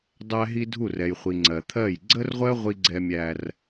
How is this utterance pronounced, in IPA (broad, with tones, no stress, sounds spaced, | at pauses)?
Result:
dˤ æ˦ ɦ i˦ dʱ u˦˨ r ɛ˨ j χʷ i˨ ŋ͡ǀ ɜ˨ t̪ʰ ɜ˦˨ j ɡ͡ǀ ə˦ r ʁʷ ɜ˦ ʁʷ i˦ ɡ͡ǀ ɛ˦ mʲ æ˦ r